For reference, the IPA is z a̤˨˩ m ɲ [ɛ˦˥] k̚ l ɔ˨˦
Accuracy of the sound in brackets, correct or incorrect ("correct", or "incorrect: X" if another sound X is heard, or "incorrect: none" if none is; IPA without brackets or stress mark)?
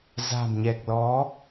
incorrect: ɛ˨˩